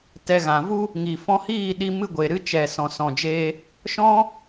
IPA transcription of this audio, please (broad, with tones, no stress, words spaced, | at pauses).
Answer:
tɛ˧ ɣã˨vu˦ | ŋi˨fɔ̃˧hiː˦˨ ɗi˧mɨ˧ ɡʷe˨ɾɨ˧t͡ʃɛ˨ sɔ̃˨sɔ̃˨d͡ʒe˧ | ʃɔ̃˦